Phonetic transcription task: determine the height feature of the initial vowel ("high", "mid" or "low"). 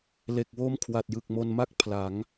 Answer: mid